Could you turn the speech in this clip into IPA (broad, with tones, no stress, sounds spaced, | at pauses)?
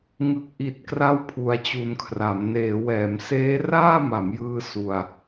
ŋ ɯ˨˩ k̚ ʔ i˨˩ t̚ k r a˥˩ w pʰ u˧ a̯ t͡ɕ u˧ n kʰ r a˩˦ m n eː˩˦ w ɛː˩˦ m s eː˦˥ r aː˥˩ m a˩˦ m j ɯː˧ s u˧ a̯